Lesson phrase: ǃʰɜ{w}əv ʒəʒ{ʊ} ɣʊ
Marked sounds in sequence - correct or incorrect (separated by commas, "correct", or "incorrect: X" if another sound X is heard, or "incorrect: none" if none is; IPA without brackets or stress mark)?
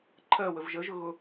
correct, correct